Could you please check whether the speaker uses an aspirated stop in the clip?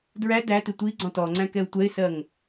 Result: no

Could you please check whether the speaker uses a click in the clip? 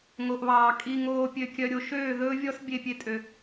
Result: no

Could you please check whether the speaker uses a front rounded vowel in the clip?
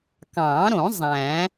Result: no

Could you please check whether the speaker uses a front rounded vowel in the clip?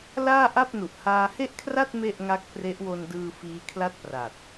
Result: no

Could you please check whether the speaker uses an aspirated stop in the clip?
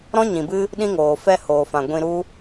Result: no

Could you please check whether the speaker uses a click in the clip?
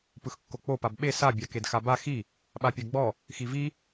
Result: no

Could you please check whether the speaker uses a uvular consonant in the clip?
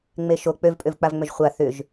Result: yes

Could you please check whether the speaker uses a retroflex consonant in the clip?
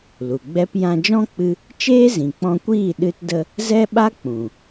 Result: no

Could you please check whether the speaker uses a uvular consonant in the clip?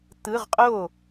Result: yes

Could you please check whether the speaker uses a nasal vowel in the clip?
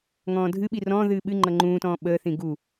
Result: yes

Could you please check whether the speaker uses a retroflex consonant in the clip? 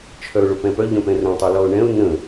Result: yes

